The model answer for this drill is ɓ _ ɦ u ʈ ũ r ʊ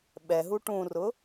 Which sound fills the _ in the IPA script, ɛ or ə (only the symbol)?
ɛ